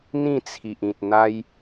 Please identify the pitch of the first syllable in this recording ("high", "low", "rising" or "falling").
falling